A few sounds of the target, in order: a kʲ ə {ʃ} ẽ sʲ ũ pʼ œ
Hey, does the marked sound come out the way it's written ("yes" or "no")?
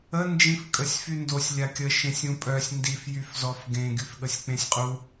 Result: yes